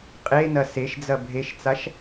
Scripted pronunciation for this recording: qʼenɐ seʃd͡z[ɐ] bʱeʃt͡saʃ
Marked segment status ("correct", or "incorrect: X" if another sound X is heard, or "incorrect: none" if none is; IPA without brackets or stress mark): correct